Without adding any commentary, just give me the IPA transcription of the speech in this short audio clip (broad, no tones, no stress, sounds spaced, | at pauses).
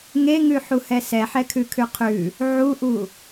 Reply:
ŋ e ŋ ʉ ħ u h ɛ s ɛ ħ ɛ kʰ ʉ kʰ ʉ qʰ ʉ | ʕ u ʔ u